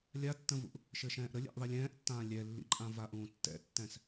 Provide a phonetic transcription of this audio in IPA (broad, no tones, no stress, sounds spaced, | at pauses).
lʲ a tː ə̃ v ṵ ʔ | ʃ ɘ ʃ ɛ̃ː ʔ ɾ ə lʲ ɛ̰ ʔ ðˤ i lʲ ɛ̃ː ʔ tː ãː lʲ ɛ lː ḭ ǃʼ ã v a ʔ ũː tː ɛ̰ tː ɛ̃ s